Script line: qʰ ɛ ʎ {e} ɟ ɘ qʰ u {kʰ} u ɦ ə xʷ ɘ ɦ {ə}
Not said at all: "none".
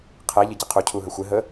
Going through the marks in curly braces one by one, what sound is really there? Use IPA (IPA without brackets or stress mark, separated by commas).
ɘ, cʰ, ə